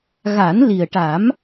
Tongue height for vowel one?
low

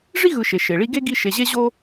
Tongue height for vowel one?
high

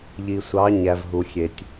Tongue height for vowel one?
high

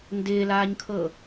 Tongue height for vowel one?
high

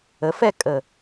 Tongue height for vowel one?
mid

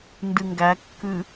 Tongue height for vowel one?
high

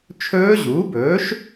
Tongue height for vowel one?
mid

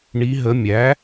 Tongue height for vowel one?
high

